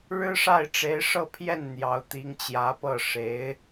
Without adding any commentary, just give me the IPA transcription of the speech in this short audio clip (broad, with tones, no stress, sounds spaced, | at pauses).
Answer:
ɻ ɻ̩˥ ʂ a˥˩ ɪ̯ ʈ͡ʂ e˧˥ ɪ̯ ʂ ɤ˥˧ pʰ j ɛ˥˩ n n̪ j ɑ˧˥ ʊ̯ t̪ i˧˥ ŋ t͡ɕ j ä˧˥ p ɤ˥˩ ʂ e˧˥ ɪ̯